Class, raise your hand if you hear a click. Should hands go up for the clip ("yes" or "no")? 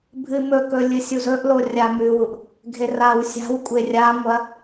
no